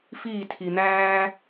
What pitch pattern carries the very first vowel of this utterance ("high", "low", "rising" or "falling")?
falling